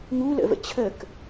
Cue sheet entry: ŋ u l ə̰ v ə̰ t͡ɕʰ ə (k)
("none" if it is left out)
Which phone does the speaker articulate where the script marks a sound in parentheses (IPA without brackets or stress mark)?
k